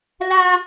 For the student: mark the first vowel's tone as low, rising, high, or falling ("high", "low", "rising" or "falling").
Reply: high